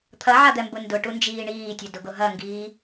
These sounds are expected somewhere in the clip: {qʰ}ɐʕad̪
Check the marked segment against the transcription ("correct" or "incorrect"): incorrect